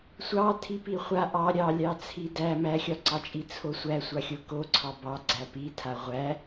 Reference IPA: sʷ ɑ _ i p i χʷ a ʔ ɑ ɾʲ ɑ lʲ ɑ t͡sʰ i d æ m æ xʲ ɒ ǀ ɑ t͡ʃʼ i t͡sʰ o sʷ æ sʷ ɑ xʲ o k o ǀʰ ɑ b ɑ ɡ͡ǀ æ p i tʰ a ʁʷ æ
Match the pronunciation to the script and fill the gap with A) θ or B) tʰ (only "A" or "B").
B